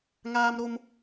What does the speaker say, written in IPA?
ŋ aː˦ m ɾ o˦ m

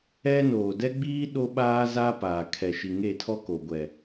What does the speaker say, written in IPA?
ɛ˦ n oː˨ d ɛ˦ ɡ͡b iː˦ ɗ o˦ ɓ aː˦ z a˦ p aː˨ kʰ ɛ˨ ʃ i˨ ŋ e˦˨ tʰ ɔ˦ k o˨ ɡʷ ɛ˨

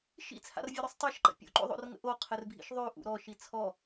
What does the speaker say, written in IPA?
ʃ ḭ t͡sʰ a̰ r vʲ ʌ ɾ ʉ sˤ tˤ a ʃ ǃ ə̰ pʲ o̰ ǃ o̰ ðˤ o̰ r ŋ ə̰ ʔ o qʰ ɘ r bʱ ḭ ʃ ðˤ ʉ ʔ ṵ ɾ ɔ ʃ i t͡sʰ ɔ

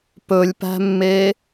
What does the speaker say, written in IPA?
p ɵ lʲ p æ̤ mː e

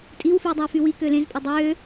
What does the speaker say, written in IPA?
tʼ i w f yː dˤ ɑ f y w i k ø l ẽ z pʼ e dˤ øː

